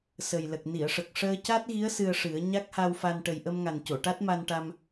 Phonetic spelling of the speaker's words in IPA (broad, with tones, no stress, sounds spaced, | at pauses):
s ə˨˩ j l ə˨˩ k̚ n i˨˩˨ ə̯ ʂ ə˨˩ k̚ ʂ əː˧ c a˦˥ t̚ ɣ i˧˥ ə̯ s ɨ˧ ə̯ ʂ ɨ˨˩˦ ə̯ ɲ a˦˥ k̚ h a˧ w f a˧ n ʈ ə˨˩ j ʔ ə˧ m ŋ a˨˩ n c o˨˩˨ ʈ a˦˥ t̚ m a˧ n ʈ a˧ m